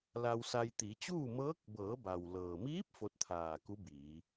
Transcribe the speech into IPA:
l a˧ w s a˧ j t̪ i˩˧ t͡ɕ uː˥˨ m ɤː˧˥ k̚ b ɤː˩˧ b a˩ w l ɤː˩ m iː˧˥ p̚ f o˧˥ t̚ t̪ʰ aː˧˩ k u˧˥ b iː˩˧

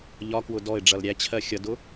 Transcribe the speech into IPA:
ʎ ɒ k w ʊ d ɔ ɪ̯ ɖ͡ʐ ʌ l ɾʲ æ t͡ɕʰ ɜ xʲ ʌ d ʊ

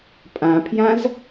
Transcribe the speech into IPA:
pʼ ã pʰ j ã z

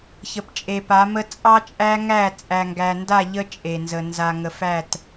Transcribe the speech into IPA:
ç ə˨ p t͡ʃʼ e˨ p a˨˦ m ə˦ t͡sʼ ɑ˦ t͡ʃʼ æ˦ ŋ æ˦˨ t͡sʼ æ˨ ŋ ɡ æ˨ n d a˦˨ ʎ ə˦ t͡ʃʼ e˨ n z ə˨ n z a˨ ŋ ə˨ f æ˦˨ t

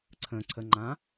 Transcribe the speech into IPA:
ǀʰ ə̃ ǀʰ ə ŋ͡ǃ ã

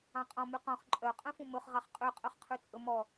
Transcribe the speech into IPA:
ɑ̃ qʼ ɔ̃ m y q ɔ̃ χ ǃʼ œ qʼ œ̃ f ũ m ɵ χ ʁ ɑ χ qʼ ø qʼ œ χ qʰ ʉ t͡sʼ ɵ m ɔ

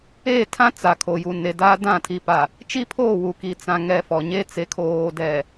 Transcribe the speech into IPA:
eː˦˨ tʰ ã˦ t͡s a˨ kʰ o˨ j u˨ n e˨ d aː˦ d ã˦˨ tʰ i˨ p a˨ | t͡ʃ i˦ pʰ oː˦˨ w u˨ k i˨ t͡s ã˨ ŋ ɛ˨ f ɔ˨ ɲ e˦ t͡s e˨ kʰ oː˨ d ɛ˨

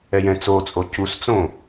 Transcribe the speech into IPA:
ɛ j ɛ̃ t͡s o t͡sʼ o c u s t͡s õ

